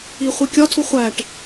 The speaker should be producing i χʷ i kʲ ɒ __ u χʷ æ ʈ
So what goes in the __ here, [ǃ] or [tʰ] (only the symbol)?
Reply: tʰ